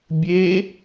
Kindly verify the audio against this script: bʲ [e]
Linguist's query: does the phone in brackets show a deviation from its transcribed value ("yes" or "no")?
no